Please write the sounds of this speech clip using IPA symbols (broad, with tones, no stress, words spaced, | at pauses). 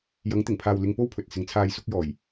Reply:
jɐ˨˧ŋt̪ɪ˨˩ŋpʰaː˨wlɪ˨ŋ po˧w pʰɵ˨t̚sɪ˨˧ŋt͡sʰaː˧j sʊ˧k̚jɔː˨˩j